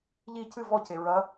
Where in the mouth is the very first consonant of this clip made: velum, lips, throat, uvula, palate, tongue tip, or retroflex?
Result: palate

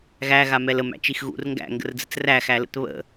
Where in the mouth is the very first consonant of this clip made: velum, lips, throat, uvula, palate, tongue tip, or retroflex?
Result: velum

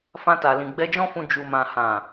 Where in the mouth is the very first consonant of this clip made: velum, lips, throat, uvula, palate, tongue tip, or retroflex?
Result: lips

